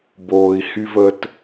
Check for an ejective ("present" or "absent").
absent